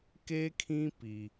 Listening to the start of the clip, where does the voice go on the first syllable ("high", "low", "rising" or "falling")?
high